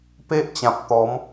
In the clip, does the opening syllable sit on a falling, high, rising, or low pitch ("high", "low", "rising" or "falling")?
high